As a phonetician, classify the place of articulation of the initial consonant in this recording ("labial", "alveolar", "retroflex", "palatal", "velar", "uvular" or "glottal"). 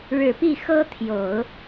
retroflex